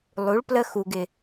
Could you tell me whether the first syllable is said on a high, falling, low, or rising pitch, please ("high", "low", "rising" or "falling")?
rising